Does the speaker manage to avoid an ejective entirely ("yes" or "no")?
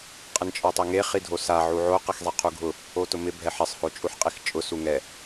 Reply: no